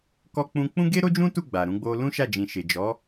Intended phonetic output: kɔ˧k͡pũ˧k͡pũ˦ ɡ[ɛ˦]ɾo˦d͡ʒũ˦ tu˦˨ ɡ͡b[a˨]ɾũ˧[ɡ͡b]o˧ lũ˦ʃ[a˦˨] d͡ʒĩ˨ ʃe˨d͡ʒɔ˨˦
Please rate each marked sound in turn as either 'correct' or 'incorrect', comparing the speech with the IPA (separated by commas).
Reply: incorrect, correct, correct, correct